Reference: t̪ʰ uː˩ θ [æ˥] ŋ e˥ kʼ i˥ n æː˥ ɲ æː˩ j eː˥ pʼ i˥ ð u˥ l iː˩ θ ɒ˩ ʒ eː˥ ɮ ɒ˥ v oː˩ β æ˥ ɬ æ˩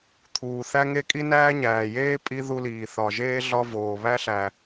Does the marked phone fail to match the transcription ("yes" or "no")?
no